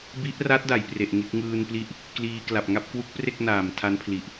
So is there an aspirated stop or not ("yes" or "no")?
yes